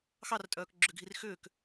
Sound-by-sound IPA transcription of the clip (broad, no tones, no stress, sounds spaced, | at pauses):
x ɑ r tʼ œː k ɡ͡ǁ ʏ ɡʱ i r x ʏː k